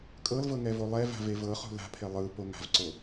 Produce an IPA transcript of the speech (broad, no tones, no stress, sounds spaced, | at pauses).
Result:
kʼ ɤ l v ɤ ŋ ɛ v o lˠ ɛ v a̤ v e v ɤ χ ṳ l a̤ pʰ e lˠ ɯ p o ŋ a̤ v ǀ o